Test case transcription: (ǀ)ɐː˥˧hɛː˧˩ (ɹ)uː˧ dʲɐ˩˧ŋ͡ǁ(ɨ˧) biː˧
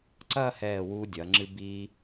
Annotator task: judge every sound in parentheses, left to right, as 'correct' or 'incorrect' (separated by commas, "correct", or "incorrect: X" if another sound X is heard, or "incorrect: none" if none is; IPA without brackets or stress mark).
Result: correct, incorrect: w, correct